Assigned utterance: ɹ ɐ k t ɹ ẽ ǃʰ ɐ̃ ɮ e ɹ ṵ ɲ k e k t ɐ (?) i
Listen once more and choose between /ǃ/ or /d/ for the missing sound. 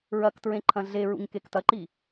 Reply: ǃ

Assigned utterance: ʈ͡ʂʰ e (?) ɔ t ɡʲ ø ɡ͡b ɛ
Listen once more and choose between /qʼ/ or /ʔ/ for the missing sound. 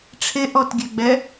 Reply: ʔ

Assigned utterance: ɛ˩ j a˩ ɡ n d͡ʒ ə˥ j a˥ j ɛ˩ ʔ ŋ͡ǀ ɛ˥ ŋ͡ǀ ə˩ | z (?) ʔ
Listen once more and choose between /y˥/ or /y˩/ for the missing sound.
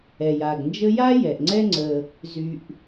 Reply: y˩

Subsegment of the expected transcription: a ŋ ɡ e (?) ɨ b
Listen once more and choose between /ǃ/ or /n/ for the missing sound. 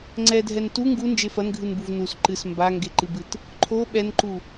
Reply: ǃ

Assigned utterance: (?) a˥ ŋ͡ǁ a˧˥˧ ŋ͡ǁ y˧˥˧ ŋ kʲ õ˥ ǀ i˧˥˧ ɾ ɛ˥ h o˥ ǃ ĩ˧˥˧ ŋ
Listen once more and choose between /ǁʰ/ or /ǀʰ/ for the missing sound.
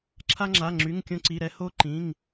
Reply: ǁʰ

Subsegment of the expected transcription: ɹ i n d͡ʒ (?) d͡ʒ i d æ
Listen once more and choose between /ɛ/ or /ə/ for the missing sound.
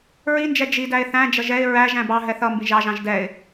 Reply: ɛ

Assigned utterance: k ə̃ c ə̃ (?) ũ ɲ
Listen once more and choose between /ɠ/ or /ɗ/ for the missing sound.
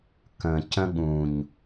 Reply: ɠ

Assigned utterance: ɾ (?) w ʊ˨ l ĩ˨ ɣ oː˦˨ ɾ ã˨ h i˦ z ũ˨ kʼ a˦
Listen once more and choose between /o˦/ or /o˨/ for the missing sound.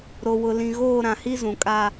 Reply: o˨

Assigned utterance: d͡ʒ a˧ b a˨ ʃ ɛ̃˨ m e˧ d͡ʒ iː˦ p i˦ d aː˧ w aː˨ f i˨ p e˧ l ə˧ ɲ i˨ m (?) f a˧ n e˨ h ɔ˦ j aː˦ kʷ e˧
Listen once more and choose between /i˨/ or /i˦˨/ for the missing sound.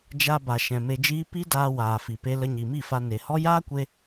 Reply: i˦˨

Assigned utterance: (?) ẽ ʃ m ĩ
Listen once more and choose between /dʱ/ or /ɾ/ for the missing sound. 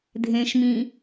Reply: dʱ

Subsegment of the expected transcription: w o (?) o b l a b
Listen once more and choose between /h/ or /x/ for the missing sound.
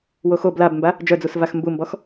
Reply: x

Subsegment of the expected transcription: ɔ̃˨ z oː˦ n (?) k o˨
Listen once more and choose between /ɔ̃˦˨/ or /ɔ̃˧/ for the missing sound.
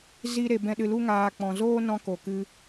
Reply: ɔ̃˧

